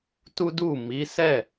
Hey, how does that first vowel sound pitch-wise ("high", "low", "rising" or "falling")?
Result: high